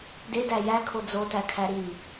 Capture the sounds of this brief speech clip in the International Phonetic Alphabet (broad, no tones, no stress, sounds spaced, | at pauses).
d e d æ j æ kʰ o d͡z o t æ kʰ æ ɾ i